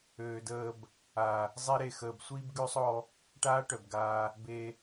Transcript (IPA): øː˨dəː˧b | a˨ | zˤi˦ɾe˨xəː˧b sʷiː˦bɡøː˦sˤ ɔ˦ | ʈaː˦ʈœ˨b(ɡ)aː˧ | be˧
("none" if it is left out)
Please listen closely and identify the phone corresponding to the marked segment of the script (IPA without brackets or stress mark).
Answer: ɡ